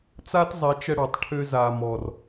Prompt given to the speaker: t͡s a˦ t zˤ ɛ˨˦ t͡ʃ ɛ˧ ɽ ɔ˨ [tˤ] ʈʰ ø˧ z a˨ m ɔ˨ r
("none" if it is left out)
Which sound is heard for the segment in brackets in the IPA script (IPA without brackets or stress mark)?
tˤ